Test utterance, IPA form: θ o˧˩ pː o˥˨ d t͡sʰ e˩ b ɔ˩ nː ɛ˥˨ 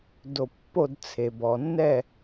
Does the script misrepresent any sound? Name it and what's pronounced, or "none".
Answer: θ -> d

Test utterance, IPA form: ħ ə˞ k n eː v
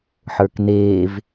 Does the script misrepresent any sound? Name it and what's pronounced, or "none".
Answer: none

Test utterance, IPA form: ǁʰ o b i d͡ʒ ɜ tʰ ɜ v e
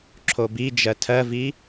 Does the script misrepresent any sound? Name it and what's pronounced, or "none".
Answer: e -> i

